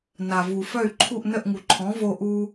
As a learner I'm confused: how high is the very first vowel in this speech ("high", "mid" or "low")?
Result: low